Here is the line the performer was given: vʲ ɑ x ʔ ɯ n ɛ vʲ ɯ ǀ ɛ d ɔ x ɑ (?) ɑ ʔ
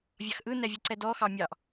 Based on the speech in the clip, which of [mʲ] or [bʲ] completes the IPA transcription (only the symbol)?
mʲ